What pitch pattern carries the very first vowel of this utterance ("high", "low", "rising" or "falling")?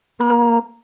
low